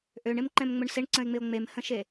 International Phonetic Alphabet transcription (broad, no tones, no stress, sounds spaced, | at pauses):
ʔ ø ɳ ɪ m ǃ ɛ̃ m ŋ͡m ʊ ɳ s ɪ ɳ ǀ ə̃ e̯ ŋ͡m ɪ o̯ ŋ͡m e m h ə̃ ʃ e